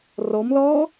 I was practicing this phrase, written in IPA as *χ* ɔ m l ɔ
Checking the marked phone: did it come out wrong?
yes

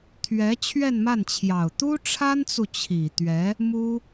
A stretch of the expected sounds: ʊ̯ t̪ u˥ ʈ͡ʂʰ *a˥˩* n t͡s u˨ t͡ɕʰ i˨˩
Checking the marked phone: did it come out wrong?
yes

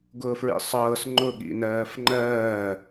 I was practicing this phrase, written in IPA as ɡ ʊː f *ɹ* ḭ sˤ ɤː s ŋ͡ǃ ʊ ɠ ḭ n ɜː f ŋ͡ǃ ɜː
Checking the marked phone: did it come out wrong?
no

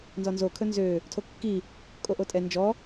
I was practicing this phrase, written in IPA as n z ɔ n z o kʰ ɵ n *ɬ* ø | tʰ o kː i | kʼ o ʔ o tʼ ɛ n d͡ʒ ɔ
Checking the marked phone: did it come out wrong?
yes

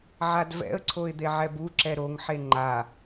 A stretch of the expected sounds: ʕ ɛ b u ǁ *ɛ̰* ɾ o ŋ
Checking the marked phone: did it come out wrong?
yes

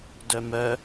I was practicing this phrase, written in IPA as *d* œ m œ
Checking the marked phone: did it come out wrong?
no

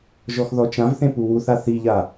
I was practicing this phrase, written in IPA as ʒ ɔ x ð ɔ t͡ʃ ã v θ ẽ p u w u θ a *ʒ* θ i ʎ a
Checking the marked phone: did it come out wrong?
yes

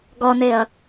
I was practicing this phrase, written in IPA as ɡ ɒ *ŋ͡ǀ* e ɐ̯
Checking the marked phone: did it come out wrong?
yes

